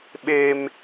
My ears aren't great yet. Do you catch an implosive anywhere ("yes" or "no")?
yes